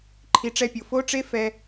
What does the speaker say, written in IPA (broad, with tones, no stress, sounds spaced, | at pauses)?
ǃʰ i˧ ʈ͡ʂ ɛ˦ pʲ o˨ f o˦ ʈ͡ʂ e˦ f ɛ˦